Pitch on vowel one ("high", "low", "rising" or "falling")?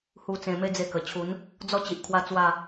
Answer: low